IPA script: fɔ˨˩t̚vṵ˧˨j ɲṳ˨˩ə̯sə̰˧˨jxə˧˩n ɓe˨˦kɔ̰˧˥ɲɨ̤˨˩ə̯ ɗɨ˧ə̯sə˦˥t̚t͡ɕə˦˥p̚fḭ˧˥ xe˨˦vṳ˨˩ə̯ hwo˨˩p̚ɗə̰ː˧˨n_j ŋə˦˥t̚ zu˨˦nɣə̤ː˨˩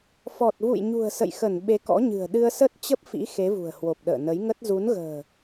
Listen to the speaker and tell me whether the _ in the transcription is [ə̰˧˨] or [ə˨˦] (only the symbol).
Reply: ə˨˦